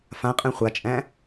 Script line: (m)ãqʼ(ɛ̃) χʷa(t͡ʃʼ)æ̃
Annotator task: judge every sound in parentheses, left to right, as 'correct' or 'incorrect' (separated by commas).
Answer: incorrect, correct, correct